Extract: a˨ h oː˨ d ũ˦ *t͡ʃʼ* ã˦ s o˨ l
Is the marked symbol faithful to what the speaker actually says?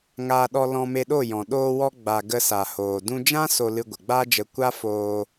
no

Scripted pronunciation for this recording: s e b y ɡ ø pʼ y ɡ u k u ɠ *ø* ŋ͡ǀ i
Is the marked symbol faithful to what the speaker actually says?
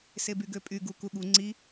no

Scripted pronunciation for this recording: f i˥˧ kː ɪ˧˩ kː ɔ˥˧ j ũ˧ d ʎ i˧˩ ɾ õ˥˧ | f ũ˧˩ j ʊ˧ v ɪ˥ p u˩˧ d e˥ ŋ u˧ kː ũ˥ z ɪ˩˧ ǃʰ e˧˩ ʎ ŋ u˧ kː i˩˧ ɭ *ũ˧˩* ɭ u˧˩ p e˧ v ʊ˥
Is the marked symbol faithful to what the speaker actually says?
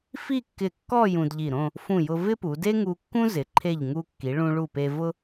no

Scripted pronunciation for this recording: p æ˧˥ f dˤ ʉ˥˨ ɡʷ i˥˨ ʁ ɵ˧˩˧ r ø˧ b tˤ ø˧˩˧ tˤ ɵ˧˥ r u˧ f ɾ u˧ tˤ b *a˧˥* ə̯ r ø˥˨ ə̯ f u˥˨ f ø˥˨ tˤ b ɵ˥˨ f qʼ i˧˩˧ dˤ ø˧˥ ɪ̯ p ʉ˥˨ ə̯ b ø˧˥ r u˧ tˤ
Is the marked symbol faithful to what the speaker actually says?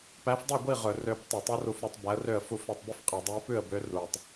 no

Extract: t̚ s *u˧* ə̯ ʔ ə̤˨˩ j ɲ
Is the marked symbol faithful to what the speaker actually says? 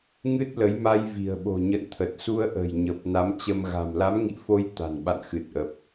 yes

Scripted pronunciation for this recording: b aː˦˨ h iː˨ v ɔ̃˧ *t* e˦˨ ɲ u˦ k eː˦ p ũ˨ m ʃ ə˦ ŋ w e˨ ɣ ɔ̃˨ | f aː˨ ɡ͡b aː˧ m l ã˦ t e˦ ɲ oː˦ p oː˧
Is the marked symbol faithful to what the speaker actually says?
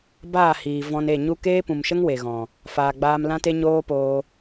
no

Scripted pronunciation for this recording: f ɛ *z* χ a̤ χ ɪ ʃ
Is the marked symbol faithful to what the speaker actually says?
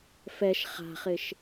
no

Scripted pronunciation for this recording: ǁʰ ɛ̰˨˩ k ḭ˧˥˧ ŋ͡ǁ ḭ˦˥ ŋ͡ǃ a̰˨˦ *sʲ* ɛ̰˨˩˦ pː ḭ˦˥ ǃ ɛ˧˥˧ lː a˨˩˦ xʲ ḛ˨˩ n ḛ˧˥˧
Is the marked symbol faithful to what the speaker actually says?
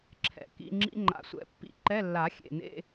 no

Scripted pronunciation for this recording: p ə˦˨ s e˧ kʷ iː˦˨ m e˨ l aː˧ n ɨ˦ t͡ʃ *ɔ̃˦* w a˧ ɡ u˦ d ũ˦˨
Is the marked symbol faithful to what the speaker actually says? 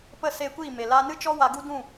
no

